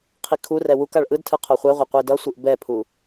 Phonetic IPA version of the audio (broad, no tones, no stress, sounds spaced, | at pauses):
qʰ i kʰ u r ɛ w u k a ɭ ʔ ɯ d tʰ ɯ qʰ o χʷ ɛ ʁʷ e qʷ i d ʌ sʷ ɯ ʔ b ɛ pʰ u